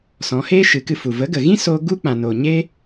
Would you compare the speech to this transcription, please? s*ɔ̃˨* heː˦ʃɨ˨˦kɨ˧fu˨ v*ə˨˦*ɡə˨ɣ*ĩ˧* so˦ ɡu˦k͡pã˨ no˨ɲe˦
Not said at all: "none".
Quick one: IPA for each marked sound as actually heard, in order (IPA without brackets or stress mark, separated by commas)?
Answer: ɔ̃˨˦, ə˨˦, ĩ˦